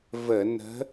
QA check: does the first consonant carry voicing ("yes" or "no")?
yes